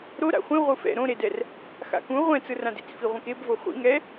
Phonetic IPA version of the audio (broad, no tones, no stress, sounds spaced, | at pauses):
ɾ o ɾ a̰ χʷ ĩ ʁʷ ɯ f ɛ̰ ɾ õ ɾ e d ɛ r | x a̰ k ũ ʁʷ ɛ̃ t͡s ɯ r ã d ḭ t͡s f i ʁʷ ĩ k e b v o χʷ ḭ ŋ ɛ